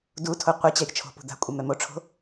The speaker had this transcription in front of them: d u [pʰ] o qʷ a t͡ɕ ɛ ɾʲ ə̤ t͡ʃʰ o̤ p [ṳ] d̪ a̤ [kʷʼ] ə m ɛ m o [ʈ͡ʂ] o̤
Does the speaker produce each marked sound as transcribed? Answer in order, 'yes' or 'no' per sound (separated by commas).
no, yes, yes, no